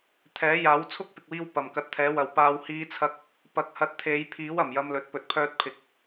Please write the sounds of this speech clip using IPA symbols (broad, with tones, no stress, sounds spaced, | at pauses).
t̪ʰ ɛː˨˥ j aː˨˥ w t͡sʰ ʊ˥ k̚ p ɪ˨ k̚ w iː˧ w p ɐ˨˩ m k ɐ˨˥ t̚ t̪ʰ ɛː˨˥ w ɐ˨ w p aː˧ w h iː˧ t͡sʰ ɐ˧ k̚ | p ɐ˨˥ k̚ h ɐ˨˥ t̚ t̪ʰ e˨˧ j pʰ iː˨˥ w ɐ˨˩ m j ɐ˧ m l ɵ˨ t̚ p ɵ˨˥ t̚ pʰ œː˧ t̚ pʰ ɪ˨ k̚